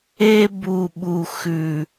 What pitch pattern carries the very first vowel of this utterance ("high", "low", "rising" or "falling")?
high